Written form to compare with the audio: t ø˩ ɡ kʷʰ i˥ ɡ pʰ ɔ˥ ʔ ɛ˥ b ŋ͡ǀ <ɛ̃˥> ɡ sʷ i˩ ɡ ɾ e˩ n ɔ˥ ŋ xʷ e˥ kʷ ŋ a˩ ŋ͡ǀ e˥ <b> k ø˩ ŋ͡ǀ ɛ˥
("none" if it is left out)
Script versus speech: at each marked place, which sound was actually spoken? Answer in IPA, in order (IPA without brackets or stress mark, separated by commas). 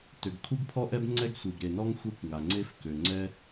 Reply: ɛ˥, f